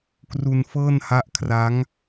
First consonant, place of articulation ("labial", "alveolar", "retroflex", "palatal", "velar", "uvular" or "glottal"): velar